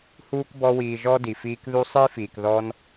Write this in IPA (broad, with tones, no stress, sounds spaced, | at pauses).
h uː˥ k b ɔ˦ w iː˨ ʒ ɔ˥ d i˩ f iː˦ k ð u˥ sˤ i˥ f iː˩ k ð ɔ˦ n